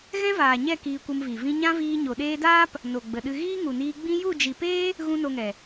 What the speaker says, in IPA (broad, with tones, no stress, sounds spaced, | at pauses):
ɣ ɛ̃˦ v aː˨ ɲ ɛ˦˨ k iː˧ kʷ ə˧ m v i˨ v ĩ˧ ɲ ã˦ v iː˧ ɲ o˨ ɗ eː˧ d aː˦ p | n o˨ ɡ͡b ə˨ ɗ ɨ˧ ɣ iː˦ ŋ u˨ n iː˧ ɡ͡b ĩ˦ j u˦˨ d͡ʒ i˨ p eː˦ | ɣ ũ˦ n o˧ ŋ ɛ˨